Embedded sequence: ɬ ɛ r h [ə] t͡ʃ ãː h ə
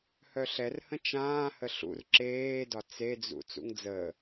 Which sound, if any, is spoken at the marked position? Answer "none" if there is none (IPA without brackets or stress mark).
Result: ə̃